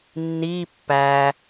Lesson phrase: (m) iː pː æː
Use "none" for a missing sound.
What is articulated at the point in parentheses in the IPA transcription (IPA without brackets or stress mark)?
nː